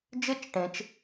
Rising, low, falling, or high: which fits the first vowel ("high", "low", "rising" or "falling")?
falling